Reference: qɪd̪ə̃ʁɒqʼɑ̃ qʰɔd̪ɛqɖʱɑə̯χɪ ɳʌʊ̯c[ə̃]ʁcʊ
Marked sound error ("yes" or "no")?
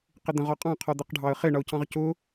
yes